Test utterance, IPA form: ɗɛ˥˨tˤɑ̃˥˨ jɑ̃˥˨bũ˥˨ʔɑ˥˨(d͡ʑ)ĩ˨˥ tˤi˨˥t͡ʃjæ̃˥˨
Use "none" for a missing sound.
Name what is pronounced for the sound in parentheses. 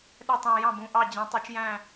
d͡ʑ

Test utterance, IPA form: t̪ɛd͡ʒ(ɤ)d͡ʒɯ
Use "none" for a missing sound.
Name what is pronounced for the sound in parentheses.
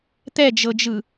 ɤ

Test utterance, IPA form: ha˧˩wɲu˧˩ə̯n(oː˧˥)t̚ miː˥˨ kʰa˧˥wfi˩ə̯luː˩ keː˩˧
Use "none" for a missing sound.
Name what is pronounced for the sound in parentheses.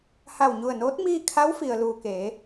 oː˧˥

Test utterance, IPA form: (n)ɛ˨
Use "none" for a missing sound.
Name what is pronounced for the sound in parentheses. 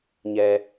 ɲ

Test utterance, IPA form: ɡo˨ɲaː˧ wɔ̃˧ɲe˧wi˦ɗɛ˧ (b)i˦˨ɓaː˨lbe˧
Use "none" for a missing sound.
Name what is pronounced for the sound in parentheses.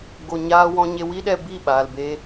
b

